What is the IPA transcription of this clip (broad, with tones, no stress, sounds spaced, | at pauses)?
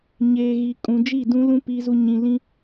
ɲ eː˨ ɣ i˨ kʼ ũ˨ d͡ʒ i˦˨ d ũ˦ l ũ˦ p i˦ z u˦ ɲ ĩ˨ l ĩ˦